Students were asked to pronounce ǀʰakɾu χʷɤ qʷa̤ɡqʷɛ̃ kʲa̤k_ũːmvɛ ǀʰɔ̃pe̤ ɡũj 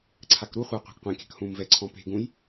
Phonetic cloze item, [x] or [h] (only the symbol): h